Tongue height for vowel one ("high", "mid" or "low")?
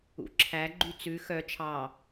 high